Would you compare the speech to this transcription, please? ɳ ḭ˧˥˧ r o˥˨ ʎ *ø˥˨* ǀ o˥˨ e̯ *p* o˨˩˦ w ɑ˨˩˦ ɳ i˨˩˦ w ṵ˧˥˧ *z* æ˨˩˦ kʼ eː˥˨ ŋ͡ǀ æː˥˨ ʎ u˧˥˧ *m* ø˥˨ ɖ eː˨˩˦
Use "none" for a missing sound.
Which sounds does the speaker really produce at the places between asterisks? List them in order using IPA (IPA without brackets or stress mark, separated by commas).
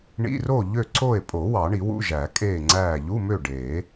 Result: ø˥˨, pʼ, ʒ, m